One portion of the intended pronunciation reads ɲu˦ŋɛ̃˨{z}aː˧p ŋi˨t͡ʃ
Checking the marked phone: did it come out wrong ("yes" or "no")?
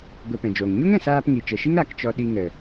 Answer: yes